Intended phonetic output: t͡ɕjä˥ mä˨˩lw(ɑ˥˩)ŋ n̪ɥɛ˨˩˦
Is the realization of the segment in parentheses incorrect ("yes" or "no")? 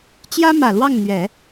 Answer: no